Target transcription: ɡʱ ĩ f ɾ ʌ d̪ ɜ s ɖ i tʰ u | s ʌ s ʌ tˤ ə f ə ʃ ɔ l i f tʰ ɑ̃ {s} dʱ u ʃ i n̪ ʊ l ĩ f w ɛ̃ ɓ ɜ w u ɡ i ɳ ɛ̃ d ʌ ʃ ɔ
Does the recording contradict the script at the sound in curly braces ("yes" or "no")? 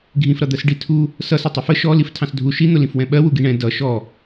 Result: no